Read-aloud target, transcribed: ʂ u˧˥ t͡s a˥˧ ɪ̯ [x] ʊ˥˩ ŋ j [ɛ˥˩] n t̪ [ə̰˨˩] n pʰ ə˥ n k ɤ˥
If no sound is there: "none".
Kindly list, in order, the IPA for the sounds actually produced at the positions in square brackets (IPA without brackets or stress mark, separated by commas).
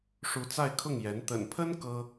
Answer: kʰ, ɛ˧˥, ə̰˨˩